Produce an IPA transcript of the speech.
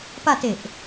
p a t e ʔ

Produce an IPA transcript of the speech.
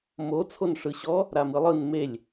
m o t͡sʰ o n ʂ ɯ ɕ ɔ | ɾ a m ɯ lˠ ɯ n m e lʲ

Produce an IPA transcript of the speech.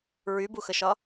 ɹ y b u x ə ʃ ɒ

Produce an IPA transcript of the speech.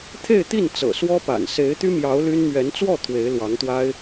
t̪ʰ e˥˧ ɪ̯ t̪ i˥˩ n t͡s ɤ̰˨˩ s w ɔ˥ p a̰˨˩ n s e˧˥ ɪ̯ t̪ y˥ m j ɑ˧˥ ʊ̯ l y˥ n m ɥ ɛ˧˥ n t͡s w ɔ˥˩ t̪ʰ w e˧˥ ɪ̯ l w ɑ˧˥ ŋ t̪ w a˥ ɪ̯

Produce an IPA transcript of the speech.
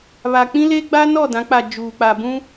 β a˨ k͡p ĩ˦ l e˦ ɡ͡b a˦ n ɔ˦˨ d ã˨˦ k͡p a˨ d͡ʒ uː˨ k͡p a˨ b ũ˦

